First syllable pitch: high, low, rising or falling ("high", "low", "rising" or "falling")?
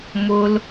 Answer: high